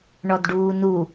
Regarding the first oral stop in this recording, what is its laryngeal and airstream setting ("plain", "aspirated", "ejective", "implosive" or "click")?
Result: plain